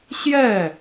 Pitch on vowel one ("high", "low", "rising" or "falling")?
falling